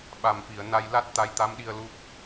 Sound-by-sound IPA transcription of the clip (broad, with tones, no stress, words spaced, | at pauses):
ɓa˨˩mfi˨˩˨ə̯ na˧j la˦˥t̚ t̪a˧˥jt̪a˧˥mɗi˧ə̯ lu˦˥p̚